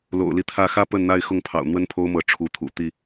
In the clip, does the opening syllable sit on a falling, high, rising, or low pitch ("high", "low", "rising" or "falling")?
low